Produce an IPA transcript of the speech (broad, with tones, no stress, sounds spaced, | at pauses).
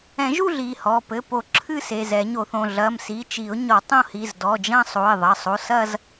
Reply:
ɛ̃˨˩˦ ʒ u˥˧ ɮ i˩˧˩ h ɔ˩˧˩ p ɘ˩˧˩ p o˨˩˦ ǁʰ ɨ˥˧ s e˩˧˩ z ɛ˨˩˦ ɲ o˨˩˦ θ õ˩˧˩ ɮ ɐ˩˧˩ m s i˩˧˩ t͡ʃ i˨˩˦ ʊ̯ ɲ ɔ˨˩˦ tˤ õ˥˧ h i˩˧˩ z d ɔ˩˧˩ d͡ʒ ɐ̃˥˧ sˤ o˩˧˩ ɪ̯ ðˤ ɐ˩˧˩ sˤ o˩˧˩ s ɐ˥˧ z